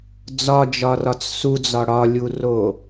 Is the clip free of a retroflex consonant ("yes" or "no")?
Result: no